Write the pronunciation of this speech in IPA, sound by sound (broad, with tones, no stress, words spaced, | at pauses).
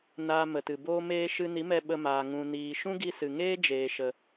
naː˧mə˨tɨ˨boː˦ meː˧ ʃɨ˧ni˨˦mɛ˧ ɓə˧maː˨ ŋũ˨niː˨ ʃũ˦ɡi˧sɨ˨ŋeː˦ d͡ʒeː˨ʃə˨